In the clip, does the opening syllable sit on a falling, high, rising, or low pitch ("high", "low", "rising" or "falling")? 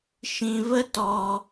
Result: low